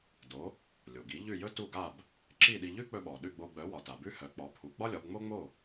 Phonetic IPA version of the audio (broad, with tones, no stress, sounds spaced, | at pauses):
d o˩˥ | lʲ o˩ ɡ i˩˥ ʎ ʉ˥˩ j ɵ˥ t u˥˩ ɡ a˥˩ b | ǁ i˥˩ ɗ i˧ ʎ ʉ˥ k͡p ɵ˧ ɓ ɔ˩ ɗ ʉ˥˩ ɡ͡b o˧ ɡ͡b œ˩˥ w ɒ˩ t a˩ b ʉ˥ h œ˩˥ k͡p ɔ˩˥ pʰ u˩˥ ɡ͡b ɒ˥ lʲ ɒ˩˥ b ŋ͡m o˥ ŋ͡m o˥˩